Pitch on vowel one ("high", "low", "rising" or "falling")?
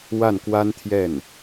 falling